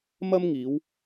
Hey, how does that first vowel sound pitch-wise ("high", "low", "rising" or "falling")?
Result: high